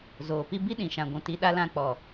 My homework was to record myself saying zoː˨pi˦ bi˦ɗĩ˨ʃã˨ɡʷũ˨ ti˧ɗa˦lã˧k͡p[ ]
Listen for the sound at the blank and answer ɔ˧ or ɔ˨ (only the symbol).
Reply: ɔ˨